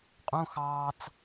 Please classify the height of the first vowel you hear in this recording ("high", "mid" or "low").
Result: high